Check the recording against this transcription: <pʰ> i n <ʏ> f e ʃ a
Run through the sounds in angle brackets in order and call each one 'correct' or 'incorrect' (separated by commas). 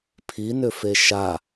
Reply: correct, correct